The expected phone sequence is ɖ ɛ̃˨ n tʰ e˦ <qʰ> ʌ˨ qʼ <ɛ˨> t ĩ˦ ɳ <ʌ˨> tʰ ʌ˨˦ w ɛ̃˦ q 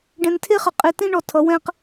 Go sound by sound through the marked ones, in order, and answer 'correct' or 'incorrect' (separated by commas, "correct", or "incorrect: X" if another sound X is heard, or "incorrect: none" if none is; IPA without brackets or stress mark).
incorrect: χ, incorrect: e˨, incorrect: ɔ˨